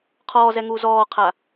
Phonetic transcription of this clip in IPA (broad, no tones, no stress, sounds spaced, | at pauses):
qʰ ɔː z ɛ ŋ uː z ɔː qʰ a